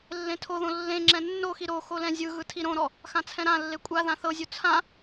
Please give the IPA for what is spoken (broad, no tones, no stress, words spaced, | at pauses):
lːẽtʰoðõ lːẽŋ͡ǁɛ̃ nːoxi ɾo xolɛ̃zʲɯɣɯ tʰiɾõɾɔ | xãt͡sʰɛ̃ɾãlːe kʷʼaðã θɤzʲu t͡sʰã